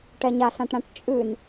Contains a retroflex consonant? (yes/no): yes